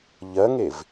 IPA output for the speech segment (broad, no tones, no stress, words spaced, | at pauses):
ʎɜŋev